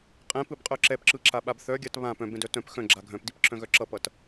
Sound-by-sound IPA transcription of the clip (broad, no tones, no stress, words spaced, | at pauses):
qʼɛ̃pɯbqʼœ ǁɛpǁɯǁaɓab θœɡʲat βãp œ̃bɛ̃dœ tœ̃p xœ̃ɡ͡ǁa ɡʱœ̃pdipǁʰœ̃ɣœ ǁʌpʌt